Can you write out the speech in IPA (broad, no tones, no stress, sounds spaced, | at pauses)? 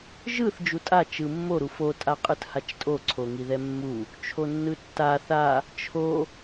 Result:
ʒ ɯ θ d͡ʒ u tʼ a t͡ʃ ɯ mː o ɾ u f o tʼ a qʼ ɯ t h a t͡ʃ tʼ o ǀʰ o ŋ i ð ɛ mː u | t͡ʃʰ o nː ɯ tː a θ a | t͡ʃʰ o